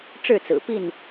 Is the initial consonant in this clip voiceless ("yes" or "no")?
yes